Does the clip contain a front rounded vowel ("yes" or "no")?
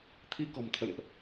no